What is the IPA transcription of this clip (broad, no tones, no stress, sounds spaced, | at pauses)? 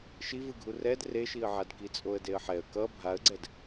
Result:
ʃ i v ɯ ɡʱ u r ɛ d r e ʃ i ə̯ ʕ a d k i t͡sʼ o ə̯ d e ə̯ ħ ɛ ə̯ k ʌ bʱ a ə̯ ɡ͡ǀ ɛ d